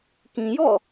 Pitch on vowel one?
low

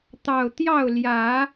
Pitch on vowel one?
low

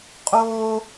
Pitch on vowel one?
high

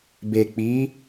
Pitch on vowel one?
low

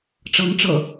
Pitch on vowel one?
rising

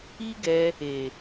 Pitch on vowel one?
high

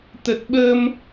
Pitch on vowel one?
low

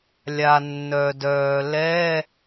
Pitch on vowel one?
low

